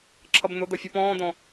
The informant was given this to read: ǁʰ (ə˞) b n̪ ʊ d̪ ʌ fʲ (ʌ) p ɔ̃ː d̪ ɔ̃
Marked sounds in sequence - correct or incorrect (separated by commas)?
incorrect, correct